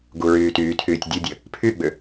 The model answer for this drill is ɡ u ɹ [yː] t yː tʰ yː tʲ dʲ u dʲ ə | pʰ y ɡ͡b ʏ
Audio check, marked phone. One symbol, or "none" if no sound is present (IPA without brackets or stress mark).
yː